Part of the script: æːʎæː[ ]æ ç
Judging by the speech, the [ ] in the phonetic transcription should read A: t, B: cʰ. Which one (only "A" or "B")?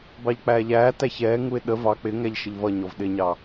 A